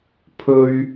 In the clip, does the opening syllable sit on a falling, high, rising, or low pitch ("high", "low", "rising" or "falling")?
high